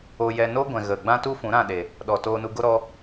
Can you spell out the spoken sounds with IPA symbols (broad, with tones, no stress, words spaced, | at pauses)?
o˧jɛ˧ no˦ɡʷɛ̃˨ ɣə˨ ɡ͡bã˦tu˦fũ˨˦ ɾã˦˨ɗe˨ | ɗɔ˨ toː˧nu˧ɡo˦ ɾɔ˦